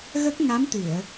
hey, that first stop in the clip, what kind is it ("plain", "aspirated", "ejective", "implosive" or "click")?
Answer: plain